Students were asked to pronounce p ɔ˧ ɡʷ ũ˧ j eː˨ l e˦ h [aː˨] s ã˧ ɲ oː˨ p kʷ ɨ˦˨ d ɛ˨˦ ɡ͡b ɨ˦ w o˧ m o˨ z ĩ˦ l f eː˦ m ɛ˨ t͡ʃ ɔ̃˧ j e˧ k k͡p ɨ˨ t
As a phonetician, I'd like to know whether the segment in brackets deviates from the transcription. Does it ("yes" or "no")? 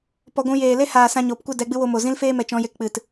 no